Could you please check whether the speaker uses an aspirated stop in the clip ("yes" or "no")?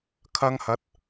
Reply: yes